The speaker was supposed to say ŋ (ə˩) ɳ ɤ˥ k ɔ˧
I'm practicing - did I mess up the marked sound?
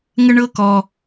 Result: yes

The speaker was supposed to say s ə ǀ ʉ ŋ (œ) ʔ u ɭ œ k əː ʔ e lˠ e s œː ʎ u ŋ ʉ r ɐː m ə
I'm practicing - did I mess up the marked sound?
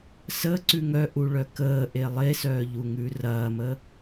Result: no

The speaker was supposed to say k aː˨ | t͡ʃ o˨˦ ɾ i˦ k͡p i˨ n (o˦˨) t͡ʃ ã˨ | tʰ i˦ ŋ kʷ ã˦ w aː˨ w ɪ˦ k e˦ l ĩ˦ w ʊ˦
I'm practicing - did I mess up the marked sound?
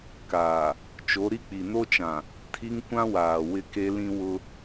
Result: yes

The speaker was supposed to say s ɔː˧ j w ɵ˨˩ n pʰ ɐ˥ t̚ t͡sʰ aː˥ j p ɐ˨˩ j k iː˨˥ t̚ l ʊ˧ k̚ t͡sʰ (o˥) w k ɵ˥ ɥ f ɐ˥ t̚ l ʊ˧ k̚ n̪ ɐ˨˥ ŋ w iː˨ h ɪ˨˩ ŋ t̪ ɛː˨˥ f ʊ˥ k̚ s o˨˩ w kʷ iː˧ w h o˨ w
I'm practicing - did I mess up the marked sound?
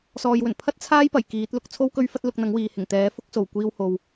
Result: no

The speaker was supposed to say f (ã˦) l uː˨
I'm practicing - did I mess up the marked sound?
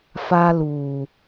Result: yes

